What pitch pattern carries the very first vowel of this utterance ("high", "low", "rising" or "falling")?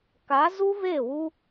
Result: rising